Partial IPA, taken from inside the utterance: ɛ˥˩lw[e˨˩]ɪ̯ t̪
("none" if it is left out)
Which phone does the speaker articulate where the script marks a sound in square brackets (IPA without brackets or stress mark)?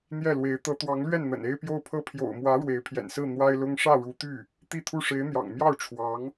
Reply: e˧˥